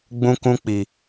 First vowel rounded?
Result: yes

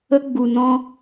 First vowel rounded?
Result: no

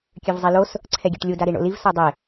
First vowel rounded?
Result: yes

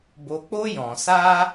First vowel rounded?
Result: yes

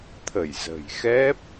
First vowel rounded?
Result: no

